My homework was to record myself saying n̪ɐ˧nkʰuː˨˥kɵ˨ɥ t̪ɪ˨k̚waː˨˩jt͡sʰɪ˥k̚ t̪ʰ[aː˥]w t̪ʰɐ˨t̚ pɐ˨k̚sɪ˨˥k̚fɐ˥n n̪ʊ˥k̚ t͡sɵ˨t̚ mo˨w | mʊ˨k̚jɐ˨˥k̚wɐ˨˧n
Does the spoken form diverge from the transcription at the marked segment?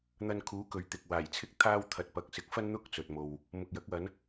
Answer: no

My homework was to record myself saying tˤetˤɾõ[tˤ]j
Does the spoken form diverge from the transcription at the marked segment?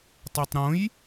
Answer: yes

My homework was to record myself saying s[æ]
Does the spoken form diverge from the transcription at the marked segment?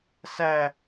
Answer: no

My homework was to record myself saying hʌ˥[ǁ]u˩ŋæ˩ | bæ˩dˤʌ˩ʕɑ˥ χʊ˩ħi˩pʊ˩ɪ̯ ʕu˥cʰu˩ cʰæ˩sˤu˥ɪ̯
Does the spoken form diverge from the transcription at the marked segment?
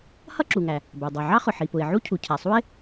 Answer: no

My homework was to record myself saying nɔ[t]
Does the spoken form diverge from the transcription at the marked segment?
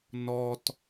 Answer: no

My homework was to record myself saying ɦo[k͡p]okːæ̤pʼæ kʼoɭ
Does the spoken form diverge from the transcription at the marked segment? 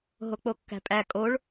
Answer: no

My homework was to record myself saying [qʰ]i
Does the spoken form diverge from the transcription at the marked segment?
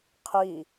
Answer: no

